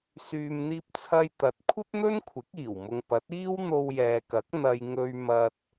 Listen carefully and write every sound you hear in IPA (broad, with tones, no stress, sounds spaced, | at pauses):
s yː˨ m n̪ iː˧ p̚ t͡sʰ ɐ˧ j t̪ ɐ˨ t̚ kʷʰ ɐ˥ p̚ n̪ ɵ˥ n kʷʰ ɪ˨˥ k̚ iː˨˩ w m ʊ˨ ŋ p ɐ˨˥ t̚ iː˥ w n̪ o˧ w j ɛː˨ k ɐ˨˥ k̚ n̪ ɐ˧ j ŋ ɵ˧ ɥ m ɐ˧ t̚